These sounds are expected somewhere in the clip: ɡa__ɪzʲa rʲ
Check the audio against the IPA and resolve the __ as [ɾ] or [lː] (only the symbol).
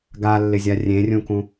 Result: lː